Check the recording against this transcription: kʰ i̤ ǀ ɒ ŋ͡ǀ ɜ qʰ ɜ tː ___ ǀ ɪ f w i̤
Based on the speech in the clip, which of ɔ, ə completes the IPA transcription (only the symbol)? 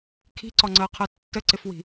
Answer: ə